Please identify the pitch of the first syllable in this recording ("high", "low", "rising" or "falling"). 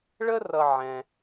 high